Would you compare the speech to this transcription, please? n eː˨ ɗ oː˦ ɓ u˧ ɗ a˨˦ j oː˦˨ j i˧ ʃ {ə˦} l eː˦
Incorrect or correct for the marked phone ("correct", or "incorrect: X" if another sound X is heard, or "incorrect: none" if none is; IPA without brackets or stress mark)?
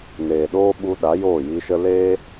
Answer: correct